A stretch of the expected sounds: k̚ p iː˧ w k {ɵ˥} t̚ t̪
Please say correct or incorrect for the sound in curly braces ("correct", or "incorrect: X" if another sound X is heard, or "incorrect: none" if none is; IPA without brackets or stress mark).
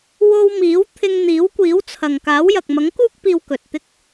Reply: incorrect: ɵ˨